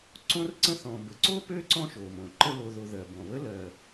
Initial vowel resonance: nasal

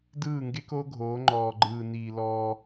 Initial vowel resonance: oral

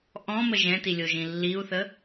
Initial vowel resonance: nasal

